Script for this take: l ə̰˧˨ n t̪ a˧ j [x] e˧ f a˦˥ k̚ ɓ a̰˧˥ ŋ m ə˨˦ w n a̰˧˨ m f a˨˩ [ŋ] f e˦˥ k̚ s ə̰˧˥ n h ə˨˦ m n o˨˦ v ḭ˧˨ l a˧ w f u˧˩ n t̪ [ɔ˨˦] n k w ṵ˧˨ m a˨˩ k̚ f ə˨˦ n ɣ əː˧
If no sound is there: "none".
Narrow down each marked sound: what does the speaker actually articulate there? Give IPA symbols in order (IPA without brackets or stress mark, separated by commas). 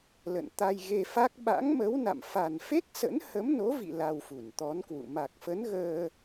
ɣ, n, ɔ˨˦